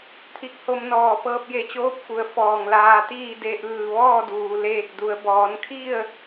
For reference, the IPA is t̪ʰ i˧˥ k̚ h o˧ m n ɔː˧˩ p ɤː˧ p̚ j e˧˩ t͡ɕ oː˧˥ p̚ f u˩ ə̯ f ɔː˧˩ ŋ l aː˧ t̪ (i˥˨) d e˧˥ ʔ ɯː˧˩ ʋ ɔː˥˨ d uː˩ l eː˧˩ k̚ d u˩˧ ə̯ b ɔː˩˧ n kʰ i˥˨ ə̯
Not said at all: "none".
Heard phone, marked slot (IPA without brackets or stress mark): iː˥˨